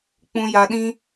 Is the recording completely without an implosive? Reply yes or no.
no